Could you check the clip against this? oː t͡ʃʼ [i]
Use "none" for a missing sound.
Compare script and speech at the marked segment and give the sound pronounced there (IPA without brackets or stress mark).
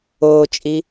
i